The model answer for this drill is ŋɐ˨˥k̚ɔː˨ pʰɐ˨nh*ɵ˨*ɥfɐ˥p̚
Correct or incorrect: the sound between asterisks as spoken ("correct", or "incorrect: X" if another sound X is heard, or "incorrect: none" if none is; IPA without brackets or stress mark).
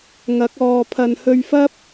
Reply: incorrect: ɵ˧